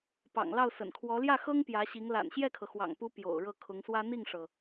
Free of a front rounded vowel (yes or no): yes